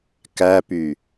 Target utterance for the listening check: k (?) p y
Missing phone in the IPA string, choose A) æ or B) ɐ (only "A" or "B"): A